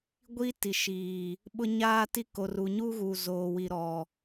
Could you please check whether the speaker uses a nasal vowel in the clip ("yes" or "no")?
no